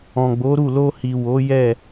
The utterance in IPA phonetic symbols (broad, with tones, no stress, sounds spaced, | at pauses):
ɔ̃˨ ɡ͡b o˨˦ ɾ u˦˨ l o˧ h i˨ w o˨˦ j ɛ˦˨